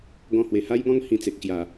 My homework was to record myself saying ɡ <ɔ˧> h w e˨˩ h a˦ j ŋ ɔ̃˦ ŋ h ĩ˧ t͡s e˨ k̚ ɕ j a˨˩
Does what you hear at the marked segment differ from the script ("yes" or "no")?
yes